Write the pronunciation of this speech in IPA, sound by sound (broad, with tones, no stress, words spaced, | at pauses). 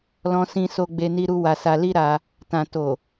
lɔ̃˧sĩ˧ so˧ɡ͡be˧ni˧ɾu˧ wa˧sa˧li˦ɾa˧ | tã˨ to˨